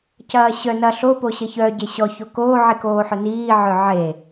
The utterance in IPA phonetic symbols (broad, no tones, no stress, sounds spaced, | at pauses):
c ɐː ɕ œ n ɐ ɬ o p o ɕ ɐ ç œ ɟ e ɕ ɔ ç o k oː ʕ i k oː ħ œ n iː ʕ œ ʕ e